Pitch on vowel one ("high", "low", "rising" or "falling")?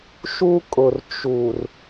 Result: high